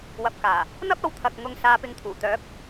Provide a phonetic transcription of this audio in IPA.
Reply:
w ɐ˨ p̚ k aː˨˩ | n̪ ɐ˥ p̚ ɐ˨ w t̪ʰ ɐ˨ k̚ ŋ ʊ˨ ŋ s aː˨˧ p ɪ˨ ŋ t̪ʰ uː˨˩ t̪ œː˨˥ p̚

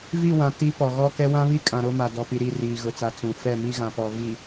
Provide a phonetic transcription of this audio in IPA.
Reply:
v i˦˨ w ã˨ t i˨˦ p ɔ˨ ɣ ɔ˦ k ɛ˦ w ã˦ β i˦ kʼ ã˨ ɾ o˦ m a˨ d ɔ˨ p i˨ ɾ i˦˨ r iː˨ ɣ ʊ˨ t͡s a˨ t͡s ũ˨ f ɛ˦˨ m i˦ ɣ ã˨ p ɔ˨ v i˨

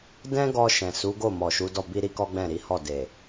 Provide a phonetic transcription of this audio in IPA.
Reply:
d ɛ̃˦ ɡ ɔ˧ ʃ ɛ̃˨ s u˨˦ ɡ o˦˨ m ɔ˨ ʃ u˨˦ d ɔ˦˨ b i˧ ɾ i˦ k ɔ˦ ɡ͡b ɛ̃˦˨ ɾ i˨˦ h ɔ˦˨ d e˨

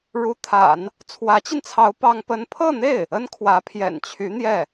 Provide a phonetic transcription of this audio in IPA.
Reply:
ɻ u˧˥ t̪ʰ a̰˨˩˦ n | t͡sʰ w ä˧˥ t͡ɕ i˧ n t͡sʰ ɑ˧˥ ʊ̯ p ɑ˥ ŋ p ə˥ n pʰ ɤ˥˧ n̪ e˥˩ ɪ̯ | ə˥ n kʰ w ä˧˥ pʰ j ɛ̰˨˩ n t͡ɕʰ y˧˥ n̪ j ɛ˥˩

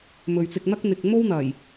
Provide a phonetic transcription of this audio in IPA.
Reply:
m ɵ˨ ɥ t͡s ɪ˧ k̚ n̪ ɐ˥ k̚ n̪ ɪ˨ k̚ m o˥ w n̪ ɐ˨˩ j

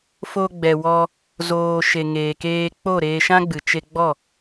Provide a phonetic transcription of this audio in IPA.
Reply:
f o˧ ɡ͡b ɛ˨ w ɔ˧ | z oː˨ ʃ e˨ ŋ eː˨ k eː˧ k͡p o˦˨ ɾ eː˧ ʃ ã˦ ɡ͡b ɨ˨ t͡ʃ e˧ ɡ͡b ɔ˦˨

